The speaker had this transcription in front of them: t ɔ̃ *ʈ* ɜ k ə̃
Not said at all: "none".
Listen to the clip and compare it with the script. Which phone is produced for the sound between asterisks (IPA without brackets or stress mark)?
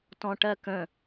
ʈ